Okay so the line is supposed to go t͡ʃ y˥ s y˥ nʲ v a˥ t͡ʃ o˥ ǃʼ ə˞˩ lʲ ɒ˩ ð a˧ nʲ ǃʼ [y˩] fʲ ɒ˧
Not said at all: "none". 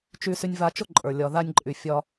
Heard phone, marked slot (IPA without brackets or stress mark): y˩